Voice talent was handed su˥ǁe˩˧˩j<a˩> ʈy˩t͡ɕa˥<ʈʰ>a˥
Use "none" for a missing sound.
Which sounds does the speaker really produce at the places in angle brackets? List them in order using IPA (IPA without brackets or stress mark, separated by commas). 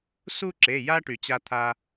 a˥, t̪ʰ